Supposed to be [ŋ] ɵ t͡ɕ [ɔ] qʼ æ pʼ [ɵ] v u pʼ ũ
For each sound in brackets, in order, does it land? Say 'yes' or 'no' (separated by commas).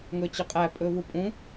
yes, no, yes